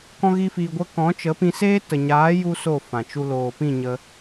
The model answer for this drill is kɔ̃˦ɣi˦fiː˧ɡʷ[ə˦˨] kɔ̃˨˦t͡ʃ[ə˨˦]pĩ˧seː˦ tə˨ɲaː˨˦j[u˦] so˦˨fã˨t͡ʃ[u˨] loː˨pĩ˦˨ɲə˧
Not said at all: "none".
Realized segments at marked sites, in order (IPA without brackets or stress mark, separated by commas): ə˦, ə˨˦, u˧, u˧